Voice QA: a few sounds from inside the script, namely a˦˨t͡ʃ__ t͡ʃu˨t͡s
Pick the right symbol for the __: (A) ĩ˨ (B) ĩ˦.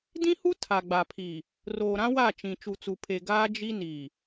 A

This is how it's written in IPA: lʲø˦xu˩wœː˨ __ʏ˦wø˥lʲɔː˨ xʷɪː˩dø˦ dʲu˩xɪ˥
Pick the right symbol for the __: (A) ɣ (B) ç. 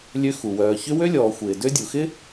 B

